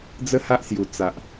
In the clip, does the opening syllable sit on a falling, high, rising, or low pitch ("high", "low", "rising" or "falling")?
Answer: high